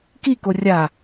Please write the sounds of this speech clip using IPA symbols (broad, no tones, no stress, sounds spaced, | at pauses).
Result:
k i k o rʲ a